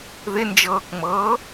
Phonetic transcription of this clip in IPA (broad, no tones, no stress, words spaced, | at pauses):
ðɪnd͡ʒɤːkŋ͡mɤː